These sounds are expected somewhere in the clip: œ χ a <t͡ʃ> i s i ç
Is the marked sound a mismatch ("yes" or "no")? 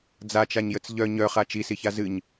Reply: no